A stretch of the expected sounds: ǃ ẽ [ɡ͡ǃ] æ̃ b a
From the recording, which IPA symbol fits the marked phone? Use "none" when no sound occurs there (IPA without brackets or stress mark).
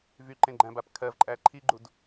ɡ͡ǃ